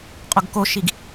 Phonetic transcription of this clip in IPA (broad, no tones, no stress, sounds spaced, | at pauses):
qʼ o ɡ k o ʃ i ɡ